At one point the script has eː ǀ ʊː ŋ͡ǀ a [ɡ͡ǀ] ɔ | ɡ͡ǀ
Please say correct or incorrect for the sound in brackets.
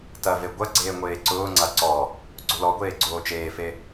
incorrect